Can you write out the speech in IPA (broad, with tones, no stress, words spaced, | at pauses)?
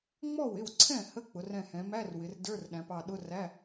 ŋ͡mɔ˥˩wɪ˥˩wǀʰɛ̃˥˩ hə˧˥˧k͡pʊ˩˧rɛ̃˧˩hɛ̃˩˧ mæ˧˥˧rwɪ˩˧r də˞˧˥˧rɗæ̃˩˧pɑ˧˩ɗʊ˧˥˧ ræ˧˥˧